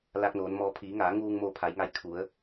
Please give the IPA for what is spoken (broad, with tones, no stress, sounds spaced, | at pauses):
l aː˧ k̚ n oː˩˧ n m ɔː˧ pʰ iː˩˧ ŋ aː˩˧ ŋ uː˧ ŋ m o˧ pʰ a˩˧ j ŋ a˧ j kʰ u˩˧ ə̯